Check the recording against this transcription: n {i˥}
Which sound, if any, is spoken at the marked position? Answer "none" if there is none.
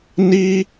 i˥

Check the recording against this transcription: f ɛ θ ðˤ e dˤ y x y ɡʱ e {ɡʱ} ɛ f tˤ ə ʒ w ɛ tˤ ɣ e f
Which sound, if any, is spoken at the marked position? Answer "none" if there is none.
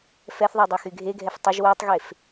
ɡʱ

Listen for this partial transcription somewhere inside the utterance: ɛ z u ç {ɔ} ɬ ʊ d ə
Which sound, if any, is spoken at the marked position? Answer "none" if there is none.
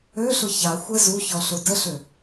ɔ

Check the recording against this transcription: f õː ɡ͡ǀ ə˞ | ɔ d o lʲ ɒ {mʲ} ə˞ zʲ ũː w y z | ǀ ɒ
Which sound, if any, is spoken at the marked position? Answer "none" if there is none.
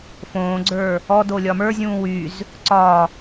m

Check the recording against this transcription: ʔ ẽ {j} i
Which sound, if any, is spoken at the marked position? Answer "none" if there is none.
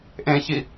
ç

